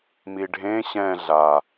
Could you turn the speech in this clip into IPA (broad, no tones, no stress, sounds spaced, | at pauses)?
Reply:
m i ɖʱ ẽ ɕ ɛ̃ ɮ a